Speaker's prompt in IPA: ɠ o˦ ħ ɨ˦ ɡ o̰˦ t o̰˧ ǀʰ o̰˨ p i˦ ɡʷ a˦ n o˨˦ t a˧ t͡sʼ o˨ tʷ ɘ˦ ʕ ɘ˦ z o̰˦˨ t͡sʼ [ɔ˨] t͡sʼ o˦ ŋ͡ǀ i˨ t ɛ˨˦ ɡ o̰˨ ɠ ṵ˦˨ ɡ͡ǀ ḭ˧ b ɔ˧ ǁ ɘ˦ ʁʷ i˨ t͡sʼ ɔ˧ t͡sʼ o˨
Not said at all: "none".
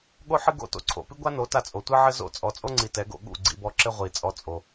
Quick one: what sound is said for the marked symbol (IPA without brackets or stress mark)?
ɔ˨